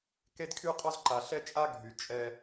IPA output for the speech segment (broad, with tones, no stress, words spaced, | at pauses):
ke˦d kʰy˧qʼɔ˧zǃa˨ɬɛ˧ t͡ʃʼa˦ ɡʱy˨t͡ʃʼɛ˧